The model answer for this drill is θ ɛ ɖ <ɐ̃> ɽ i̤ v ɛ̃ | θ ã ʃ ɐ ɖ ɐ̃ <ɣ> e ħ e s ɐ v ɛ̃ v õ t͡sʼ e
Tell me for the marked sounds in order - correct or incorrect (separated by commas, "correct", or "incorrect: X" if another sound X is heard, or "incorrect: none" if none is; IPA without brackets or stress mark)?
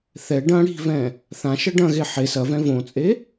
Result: correct, correct